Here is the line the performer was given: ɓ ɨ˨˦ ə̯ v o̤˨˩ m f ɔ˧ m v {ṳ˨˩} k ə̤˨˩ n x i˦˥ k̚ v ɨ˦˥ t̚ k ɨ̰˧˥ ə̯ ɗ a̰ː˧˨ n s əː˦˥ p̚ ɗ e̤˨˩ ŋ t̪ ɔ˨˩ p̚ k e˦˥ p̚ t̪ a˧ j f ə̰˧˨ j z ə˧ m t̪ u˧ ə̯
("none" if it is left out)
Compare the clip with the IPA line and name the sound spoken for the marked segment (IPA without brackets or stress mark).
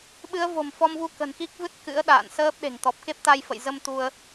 u˧